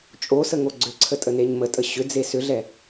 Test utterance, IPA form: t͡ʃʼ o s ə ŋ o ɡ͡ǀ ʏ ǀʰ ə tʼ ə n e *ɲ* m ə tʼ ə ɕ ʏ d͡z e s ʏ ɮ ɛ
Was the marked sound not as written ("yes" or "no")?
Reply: no